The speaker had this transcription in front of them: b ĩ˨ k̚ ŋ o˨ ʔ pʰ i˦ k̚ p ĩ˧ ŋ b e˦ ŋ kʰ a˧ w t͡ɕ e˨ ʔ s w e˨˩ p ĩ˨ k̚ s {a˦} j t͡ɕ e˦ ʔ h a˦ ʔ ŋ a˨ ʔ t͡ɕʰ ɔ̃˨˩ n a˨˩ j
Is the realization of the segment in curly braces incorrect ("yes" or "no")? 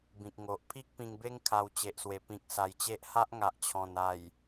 yes